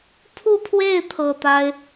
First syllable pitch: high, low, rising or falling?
falling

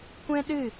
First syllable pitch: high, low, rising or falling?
high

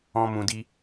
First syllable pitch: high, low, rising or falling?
high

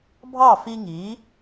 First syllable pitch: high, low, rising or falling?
falling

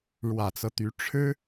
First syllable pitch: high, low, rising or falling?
low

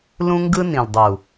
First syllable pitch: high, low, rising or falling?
high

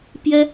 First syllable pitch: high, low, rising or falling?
high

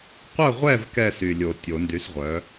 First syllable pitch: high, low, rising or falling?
falling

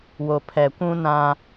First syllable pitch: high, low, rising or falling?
low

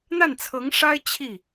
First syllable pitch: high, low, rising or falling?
falling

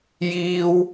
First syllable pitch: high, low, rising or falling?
high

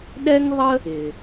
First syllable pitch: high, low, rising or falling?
high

